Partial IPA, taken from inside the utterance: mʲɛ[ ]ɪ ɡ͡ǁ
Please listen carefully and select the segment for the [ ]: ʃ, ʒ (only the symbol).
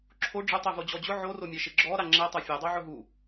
ʃ